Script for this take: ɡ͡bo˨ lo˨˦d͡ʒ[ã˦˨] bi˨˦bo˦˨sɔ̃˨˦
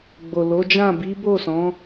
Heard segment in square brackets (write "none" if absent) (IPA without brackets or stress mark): ã˦˨